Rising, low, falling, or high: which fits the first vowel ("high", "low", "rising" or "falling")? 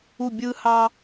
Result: falling